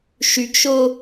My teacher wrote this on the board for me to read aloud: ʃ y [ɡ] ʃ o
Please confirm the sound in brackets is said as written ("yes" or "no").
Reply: yes